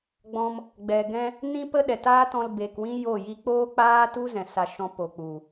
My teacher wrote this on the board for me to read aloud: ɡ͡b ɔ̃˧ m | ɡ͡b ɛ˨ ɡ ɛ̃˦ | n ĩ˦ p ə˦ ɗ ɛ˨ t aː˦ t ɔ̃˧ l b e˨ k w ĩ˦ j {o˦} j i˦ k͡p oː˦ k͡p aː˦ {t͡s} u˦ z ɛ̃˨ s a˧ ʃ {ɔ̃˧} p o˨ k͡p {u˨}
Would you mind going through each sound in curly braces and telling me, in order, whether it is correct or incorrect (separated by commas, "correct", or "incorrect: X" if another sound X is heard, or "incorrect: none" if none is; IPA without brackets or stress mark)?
incorrect: o˦˨, incorrect: t, correct, correct